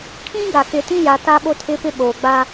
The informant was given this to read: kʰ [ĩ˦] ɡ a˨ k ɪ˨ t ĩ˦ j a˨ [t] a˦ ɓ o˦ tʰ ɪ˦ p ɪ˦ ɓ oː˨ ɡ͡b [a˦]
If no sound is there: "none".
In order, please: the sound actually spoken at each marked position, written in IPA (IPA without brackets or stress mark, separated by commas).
ĩ˦, t, a˦